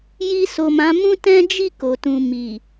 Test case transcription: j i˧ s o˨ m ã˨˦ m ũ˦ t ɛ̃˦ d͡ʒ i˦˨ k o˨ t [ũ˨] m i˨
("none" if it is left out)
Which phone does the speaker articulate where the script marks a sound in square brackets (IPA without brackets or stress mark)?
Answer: ũ˨